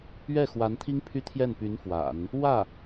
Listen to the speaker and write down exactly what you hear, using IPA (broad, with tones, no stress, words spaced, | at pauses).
ɥɛ˥˩ xwa˧˥nt̪ʰi˥ŋpʰy˥ t̪ʰjɛ˥˩npy˧˥n fwa̰˨˩˦n | wä˥˩